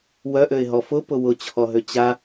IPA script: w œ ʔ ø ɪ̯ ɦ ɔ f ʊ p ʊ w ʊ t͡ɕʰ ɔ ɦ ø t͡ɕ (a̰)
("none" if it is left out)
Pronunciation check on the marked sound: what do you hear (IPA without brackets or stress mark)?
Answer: a